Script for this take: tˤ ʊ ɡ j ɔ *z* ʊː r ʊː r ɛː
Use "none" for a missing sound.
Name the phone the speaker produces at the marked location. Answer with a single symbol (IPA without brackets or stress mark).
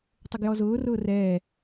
z